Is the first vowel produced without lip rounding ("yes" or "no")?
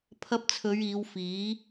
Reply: yes